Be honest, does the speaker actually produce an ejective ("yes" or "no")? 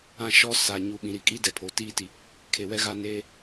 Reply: yes